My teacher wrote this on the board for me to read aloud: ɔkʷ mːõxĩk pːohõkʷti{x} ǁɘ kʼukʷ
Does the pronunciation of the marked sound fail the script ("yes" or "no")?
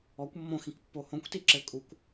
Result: yes